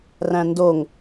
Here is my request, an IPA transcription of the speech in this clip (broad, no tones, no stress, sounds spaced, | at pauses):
r æ̃ n d o ŋ